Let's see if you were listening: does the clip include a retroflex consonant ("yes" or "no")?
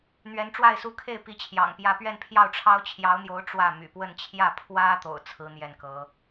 yes